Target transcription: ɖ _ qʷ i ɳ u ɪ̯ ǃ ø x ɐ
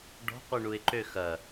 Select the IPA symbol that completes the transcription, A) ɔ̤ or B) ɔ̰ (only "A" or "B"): A